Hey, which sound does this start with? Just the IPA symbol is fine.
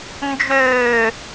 n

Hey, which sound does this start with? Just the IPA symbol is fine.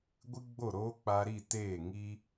ɡʷ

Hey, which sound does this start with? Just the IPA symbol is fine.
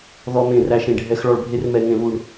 ð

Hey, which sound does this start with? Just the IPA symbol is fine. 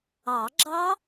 ɑ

